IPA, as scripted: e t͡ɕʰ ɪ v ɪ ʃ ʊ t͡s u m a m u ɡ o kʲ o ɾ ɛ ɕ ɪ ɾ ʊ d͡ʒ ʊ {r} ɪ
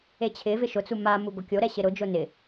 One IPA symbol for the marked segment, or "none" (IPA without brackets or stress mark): n